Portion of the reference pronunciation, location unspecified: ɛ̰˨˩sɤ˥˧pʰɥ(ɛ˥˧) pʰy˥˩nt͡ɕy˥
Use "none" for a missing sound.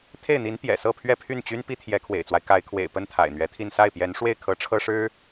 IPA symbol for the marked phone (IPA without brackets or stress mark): ɛ˥˧